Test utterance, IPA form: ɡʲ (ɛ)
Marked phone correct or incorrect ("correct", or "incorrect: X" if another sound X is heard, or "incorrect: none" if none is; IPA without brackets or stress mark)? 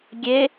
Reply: incorrect: e